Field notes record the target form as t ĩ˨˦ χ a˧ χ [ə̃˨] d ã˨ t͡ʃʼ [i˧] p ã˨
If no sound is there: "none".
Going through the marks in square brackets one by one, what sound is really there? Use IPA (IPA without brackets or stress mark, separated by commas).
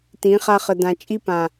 ə˨, i˧